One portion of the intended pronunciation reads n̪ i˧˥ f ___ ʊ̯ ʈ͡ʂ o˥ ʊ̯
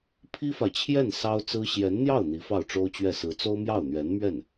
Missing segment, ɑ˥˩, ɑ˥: ɑ˥˩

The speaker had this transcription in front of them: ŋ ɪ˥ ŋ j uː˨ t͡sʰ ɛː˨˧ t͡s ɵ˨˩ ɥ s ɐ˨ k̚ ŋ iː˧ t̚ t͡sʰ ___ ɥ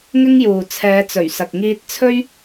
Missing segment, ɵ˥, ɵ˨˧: ɵ˥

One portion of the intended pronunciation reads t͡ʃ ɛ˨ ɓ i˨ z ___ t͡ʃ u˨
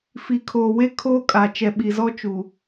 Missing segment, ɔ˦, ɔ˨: ɔ˦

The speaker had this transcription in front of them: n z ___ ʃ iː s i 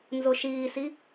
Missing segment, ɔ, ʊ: ʊ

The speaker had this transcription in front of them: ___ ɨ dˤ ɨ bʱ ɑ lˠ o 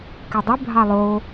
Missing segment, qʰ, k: k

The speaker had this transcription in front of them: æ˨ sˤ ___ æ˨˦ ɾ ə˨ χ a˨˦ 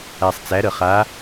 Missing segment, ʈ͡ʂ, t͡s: t͡s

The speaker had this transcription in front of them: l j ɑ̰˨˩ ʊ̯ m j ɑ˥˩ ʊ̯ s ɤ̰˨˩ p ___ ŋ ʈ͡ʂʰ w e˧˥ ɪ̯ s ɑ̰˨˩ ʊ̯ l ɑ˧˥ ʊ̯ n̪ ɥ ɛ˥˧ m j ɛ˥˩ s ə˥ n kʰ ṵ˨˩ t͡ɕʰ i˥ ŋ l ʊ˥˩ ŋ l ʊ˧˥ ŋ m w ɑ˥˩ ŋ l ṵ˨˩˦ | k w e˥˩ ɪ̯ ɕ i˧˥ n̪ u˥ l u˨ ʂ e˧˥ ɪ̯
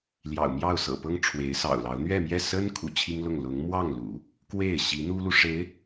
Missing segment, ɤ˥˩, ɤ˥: ɤ˥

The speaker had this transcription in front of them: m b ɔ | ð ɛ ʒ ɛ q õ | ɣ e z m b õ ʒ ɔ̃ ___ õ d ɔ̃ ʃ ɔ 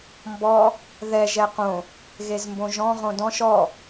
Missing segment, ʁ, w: ʁ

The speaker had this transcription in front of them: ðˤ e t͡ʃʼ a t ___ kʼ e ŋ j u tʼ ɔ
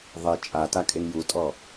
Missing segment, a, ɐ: a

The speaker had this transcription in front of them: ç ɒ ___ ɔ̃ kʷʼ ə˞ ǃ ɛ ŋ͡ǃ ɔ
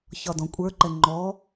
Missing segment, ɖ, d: d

